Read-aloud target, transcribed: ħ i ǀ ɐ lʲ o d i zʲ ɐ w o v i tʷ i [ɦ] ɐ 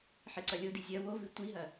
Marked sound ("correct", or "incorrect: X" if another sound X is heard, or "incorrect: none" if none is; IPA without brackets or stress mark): correct